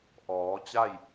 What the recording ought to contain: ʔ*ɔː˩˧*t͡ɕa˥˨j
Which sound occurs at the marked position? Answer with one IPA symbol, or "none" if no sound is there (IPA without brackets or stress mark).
ɔː˩˧